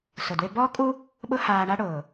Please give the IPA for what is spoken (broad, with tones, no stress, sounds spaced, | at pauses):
s ʊ˩ d w ɪ˧ b ɔː˥ kʼ u˥ | ɓ ʊ˥ h aː˧ ɳ a˥ ɽ ʊː˩